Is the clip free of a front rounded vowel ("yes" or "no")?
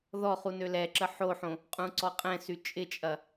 no